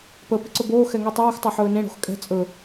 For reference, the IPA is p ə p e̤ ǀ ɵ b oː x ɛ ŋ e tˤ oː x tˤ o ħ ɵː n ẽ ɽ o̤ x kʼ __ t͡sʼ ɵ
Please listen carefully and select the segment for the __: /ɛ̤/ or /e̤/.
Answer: ɛ̤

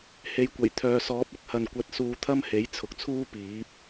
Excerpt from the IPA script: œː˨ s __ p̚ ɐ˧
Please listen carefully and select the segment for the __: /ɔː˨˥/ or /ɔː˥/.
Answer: ɔː˨˥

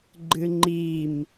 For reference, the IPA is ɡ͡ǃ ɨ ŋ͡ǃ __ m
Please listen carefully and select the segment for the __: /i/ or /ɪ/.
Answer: i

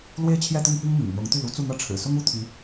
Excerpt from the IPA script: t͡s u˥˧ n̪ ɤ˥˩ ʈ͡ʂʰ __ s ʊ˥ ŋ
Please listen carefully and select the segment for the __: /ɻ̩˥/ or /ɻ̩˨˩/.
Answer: ɻ̩˨˩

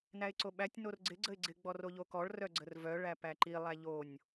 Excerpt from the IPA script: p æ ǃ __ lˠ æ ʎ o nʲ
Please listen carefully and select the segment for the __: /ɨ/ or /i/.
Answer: i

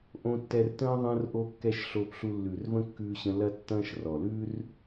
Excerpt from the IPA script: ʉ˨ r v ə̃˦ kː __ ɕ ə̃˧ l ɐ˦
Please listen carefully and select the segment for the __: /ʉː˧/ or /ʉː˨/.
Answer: ʉː˧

